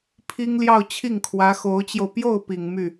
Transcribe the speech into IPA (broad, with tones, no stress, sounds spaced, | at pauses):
pʰ i˥ ŋ l j ɑ˥˧ ʊ̯ t͡ɕʰ i˥˩ ŋ kʰ w ä˧˥ x o˧˥ ʊ̯ t͡ɕ j o˧ ʊ̯ p j o˥˩ ʊ̯ p i˨˩ ŋ m y˥˩